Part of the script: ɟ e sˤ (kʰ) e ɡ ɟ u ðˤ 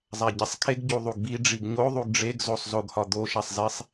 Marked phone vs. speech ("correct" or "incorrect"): correct